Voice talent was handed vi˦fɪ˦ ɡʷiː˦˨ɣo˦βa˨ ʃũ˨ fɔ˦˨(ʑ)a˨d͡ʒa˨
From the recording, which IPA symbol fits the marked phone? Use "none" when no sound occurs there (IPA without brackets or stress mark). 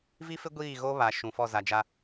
z